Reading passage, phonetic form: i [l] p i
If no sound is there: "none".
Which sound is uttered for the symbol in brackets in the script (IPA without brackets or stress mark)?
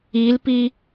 l